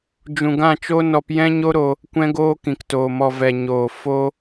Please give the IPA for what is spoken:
d͡ʒ ũ˨ ɡ ã˦˨ t͡ʃ oː˦ n ɔ˧ p j ɛ̃˦ ɲ o˦ ɾ o˧ | kʷ ɛ̃˧ ɡ oː˧ k ĩ˨ k t oː˨ m ɔ˨ v ɛ˨ ɲ oː˨ f o˦

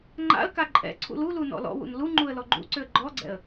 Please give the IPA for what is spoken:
ŋ͡ǃ a̰ ə̯ k a ǃʼ ɛ̰ ǀʰ ṵ l u l u n ɔ̰ l ɔ̰ w ṵ n l u ŋ͡ǃ u ə̯ l ɔ ɡ͡ǃ ṵ ǀ ʏ ə̯ ɡ͡ǃ ɔ ɡ͡ǀ ɛ̰ ə̯

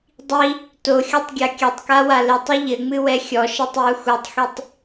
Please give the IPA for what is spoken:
dˤ i | t o xʲ ɔ tˤ ɡʲ a kʲ ɐ tˤ k a w a l ɘ tˤ ɨ ʎ ɘ ŋ͡m ɨ w ɛ xʲ ɔ ʃ ɛ tˤ j u x u tˤ x i tˤ

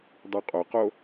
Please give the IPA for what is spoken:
dˤ u qʼ o q o

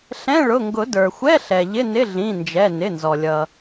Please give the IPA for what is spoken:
ɬ ɛ̃˧˥˧ ɭ ʊ˩˧˩ ŋ ɡ ʊ˨˩˦ d ə˞˩ xʷ ɛ˧˥˧ ɬ ɛ˩ ʎ ɪ˧˥˧ n ɪ˧˥˧ ɮ ĩ˩˧˩ n d͡ʒ ɛ˩˧˩ n ɪ˩˧˩ n z ɔ˩ lʲ ʌ˩

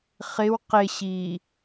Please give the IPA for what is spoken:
χ ɪ w q ɪ ɕ i

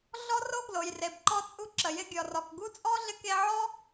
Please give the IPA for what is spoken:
ɮ ɔ˦ r o˦ ɡ l o˨ j r e˨ b ǃ ɔ˧ t͡sʼ u˧ ǁ ə˨ j ɪ˧ ɡʲ ɔ˨ r ɔ˨ k ɡ u˦ t͡sʼ ɔ˦ ɮ ɪ˧ k e˧ ʕ ɔ˦

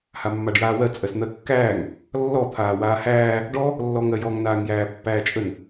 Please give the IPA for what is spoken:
h a mː a ɖ j aː w ɜ t͡sʼ ɜ s n̪ ɜ kː æː ŋ | lː ɔ t̪ʰ aː w aː h æː | ɖ ɔ | lː ɔ ŋ ɜ j ɔ ŋ n aː ŋ j æː pː æː t͡ʃʼ ə n

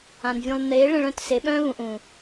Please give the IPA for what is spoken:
ã˨ n vʲ ũ˨ lˠ n eː˨˦ ɭ ẽ˧ ɭ œ̃˦˨ t s e˨˦ ɓ œ̃ː˦ β ũ˨ ʔ ũː˨

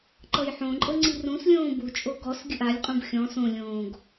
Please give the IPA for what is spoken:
ǃ ɤ j ħ õ ǃʼ ɤ ŋ͡ǀ i r ũ s lʲ õː b u t͡ʃʼ o ɡ ɔ s ɡʲ ɯ ʔ a lʲ qʼ ũ b xʲ ɔ̃ s õ lʲ õː ɡ

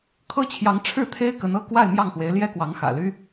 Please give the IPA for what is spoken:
kʰ ɤ˥ t͡ɕʰ j ɑ˧˥ ŋ ʈ͡ʂʰ ɻ̩˥˩ t̪ʰ e˥ ɪ̯ k ə˧˥ n ɤ˥ k w a˥˧ ɪ̯ m j ɑ˥˩ ŋ x w e˧˥ ɪ̯ l j ɛ˥ k w ɑ˧˥ ŋ x ä̰˨˩ l y˥

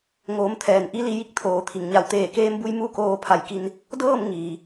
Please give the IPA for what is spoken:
ŋ oː˩˧ m t̪ʰ ɛː˩ n ʔ i˧˥ l i˩˧ j i˧ k̚ t̪ʰ oː˩˧ t̪ʰ i˩ ŋ ɲ a˧˩ w t̪ eː˧˩ k eː˧ m b u˧ j m u˥˨ k oː˧ pʰ a˧˩ j k i˧ n | d ɤː˥˨ m ŋ iː˩

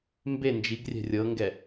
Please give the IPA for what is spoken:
m b e n d͡ʒ i ɡ rʲ ɛ̤ rʲ ɤ ŋ ɡ ɛ

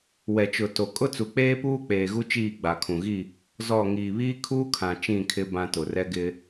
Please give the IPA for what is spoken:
w ɛ˨ t͡ʃ ʊ˨ t o˨ kʼ ʊ˦ t͡s u˨ k͡p eː˦ p uː˦ k͡p eː˨ ɣ u˦ t͡ʃ iː˦˨ ɡ͡b a˨ kʰ ũ˨ ɣ i˦˨ | z ɔ˦˨ ŋ iː˨ β iː˦ kʰ uː˦ kʰ ã˨ t͡ʃ ĩ˦˨ kʰ ɪ˦ b ã˦ t ʊ˨ r ɛ˦ ɡ ɪ˦

